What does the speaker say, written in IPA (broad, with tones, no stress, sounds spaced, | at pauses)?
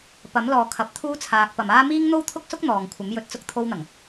p ɐ˨˥ m l ɔː˨ kʰ ɐ˨˥ p̚ t̪ʰ uː˥ t͡sʰ aː˧ k̚ p ɐ˨ m aː˥ m iː˥ ŋ n̪ o˥ w t̪ʰ ʊ˥ k̚ s ʊ˥ k̚ n̪ ɔː˨ ŋ kʷʰ ɐ˨˥ m j ɵ˨˥ t̚ t͡s ʊ˥ k̚ t̪ʰ o˧ w n̪ ɐ˨˩ ŋ